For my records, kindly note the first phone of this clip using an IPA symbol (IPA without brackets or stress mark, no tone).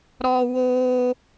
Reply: ɾ